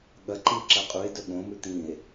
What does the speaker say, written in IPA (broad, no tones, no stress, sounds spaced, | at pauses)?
ɠ ɐ ǃ i ǁ ɐ qʼ u e̯ d ɵ ɠ õ m ʉ t̪ ĩ e̯